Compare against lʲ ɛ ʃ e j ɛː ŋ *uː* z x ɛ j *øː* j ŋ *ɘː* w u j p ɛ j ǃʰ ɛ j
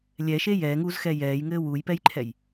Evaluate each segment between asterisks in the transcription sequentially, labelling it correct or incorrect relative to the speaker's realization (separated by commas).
correct, incorrect, correct